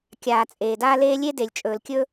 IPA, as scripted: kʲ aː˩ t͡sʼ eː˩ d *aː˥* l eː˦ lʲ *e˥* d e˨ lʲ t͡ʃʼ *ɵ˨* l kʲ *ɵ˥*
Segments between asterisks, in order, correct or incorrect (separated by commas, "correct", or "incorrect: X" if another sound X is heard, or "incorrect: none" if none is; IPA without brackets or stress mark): incorrect: aː˦, correct, incorrect: ɵː˨, correct